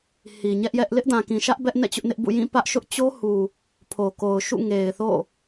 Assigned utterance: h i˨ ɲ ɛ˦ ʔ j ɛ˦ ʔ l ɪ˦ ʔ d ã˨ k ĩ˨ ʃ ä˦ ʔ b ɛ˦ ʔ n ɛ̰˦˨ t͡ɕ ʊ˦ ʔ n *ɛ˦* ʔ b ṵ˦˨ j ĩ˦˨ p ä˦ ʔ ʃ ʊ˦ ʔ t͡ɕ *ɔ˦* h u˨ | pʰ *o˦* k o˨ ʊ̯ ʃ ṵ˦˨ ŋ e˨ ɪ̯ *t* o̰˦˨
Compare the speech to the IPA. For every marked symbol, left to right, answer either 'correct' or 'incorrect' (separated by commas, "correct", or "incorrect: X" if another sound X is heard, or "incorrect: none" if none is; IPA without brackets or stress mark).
incorrect: ɪ˦, incorrect: o˦, incorrect: o˨, incorrect: θ